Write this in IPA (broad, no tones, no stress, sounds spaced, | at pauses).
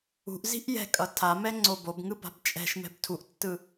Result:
ṳ ʔ z i̤ ʔ j ɛ̤ kʼ ʌ tʰ a m ɛ ŋ͡ǀ o b o b ŋ ɯ b a̤ b t͡ʃʼ ɛ̤ ʃ m ɛ̤ b tʰ u ʔ tː ɯ